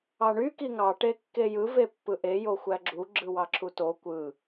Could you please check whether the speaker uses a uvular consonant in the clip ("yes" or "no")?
no